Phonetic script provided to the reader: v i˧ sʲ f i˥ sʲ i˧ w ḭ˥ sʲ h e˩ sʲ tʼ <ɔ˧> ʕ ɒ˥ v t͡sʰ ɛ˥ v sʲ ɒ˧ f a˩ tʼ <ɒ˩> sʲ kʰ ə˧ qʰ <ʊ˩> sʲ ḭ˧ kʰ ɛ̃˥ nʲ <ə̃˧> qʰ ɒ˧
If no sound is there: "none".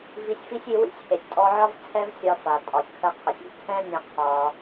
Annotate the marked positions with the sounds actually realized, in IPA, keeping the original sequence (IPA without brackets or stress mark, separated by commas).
ɔ˧, ɒ˩, ʊ˩, ə̃˧